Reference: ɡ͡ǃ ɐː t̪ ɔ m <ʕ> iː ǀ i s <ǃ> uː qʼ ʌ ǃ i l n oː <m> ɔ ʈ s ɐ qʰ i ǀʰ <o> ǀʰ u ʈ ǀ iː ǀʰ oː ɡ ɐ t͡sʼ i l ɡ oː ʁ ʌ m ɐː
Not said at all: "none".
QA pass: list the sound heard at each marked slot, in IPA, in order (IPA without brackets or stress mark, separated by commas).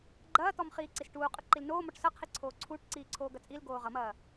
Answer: χ, ʈ, m, oː